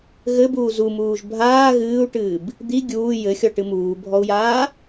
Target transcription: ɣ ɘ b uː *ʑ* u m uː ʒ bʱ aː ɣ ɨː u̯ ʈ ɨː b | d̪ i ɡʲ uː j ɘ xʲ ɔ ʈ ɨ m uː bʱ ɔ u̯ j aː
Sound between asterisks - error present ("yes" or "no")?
yes